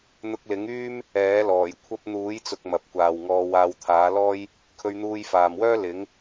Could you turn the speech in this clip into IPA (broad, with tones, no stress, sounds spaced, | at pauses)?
n̪ ʊ˧ k̚ l ɪ˨˥ ŋ yː˥ m | ɛː˨˥ l ɔː˨˩ j kʷʰ ɐ˥ p̚ n̪ uː˨˥ j t͡s ʊ˨ k̚ m ɐ˨ p̚ kʷ aː˨ w ŋ ɔː˧ w aː˧ w t̪ʰ aː˨˥ l ɔː˥ j | kʰ ɵ˧ ɥ n̪ uː˧ j f aː˨ m w œː˥ l ɪ˨˥ ŋ